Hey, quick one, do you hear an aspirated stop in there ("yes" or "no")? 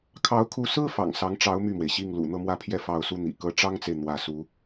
yes